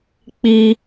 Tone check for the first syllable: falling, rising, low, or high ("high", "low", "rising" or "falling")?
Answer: high